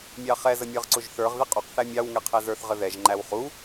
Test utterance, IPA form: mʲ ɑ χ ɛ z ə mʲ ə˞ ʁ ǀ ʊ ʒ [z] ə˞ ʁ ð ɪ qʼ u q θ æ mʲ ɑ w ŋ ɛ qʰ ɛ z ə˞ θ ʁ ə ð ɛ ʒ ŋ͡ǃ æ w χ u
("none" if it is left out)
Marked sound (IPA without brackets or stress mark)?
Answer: θ